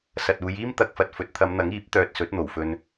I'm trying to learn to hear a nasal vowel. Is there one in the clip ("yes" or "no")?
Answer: no